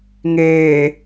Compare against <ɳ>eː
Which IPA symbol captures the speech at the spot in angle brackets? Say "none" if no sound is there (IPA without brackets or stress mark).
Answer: ŋ